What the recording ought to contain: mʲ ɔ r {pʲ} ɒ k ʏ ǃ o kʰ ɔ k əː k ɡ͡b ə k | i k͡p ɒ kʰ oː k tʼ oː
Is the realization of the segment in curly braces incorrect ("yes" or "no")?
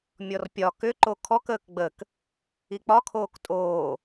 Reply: no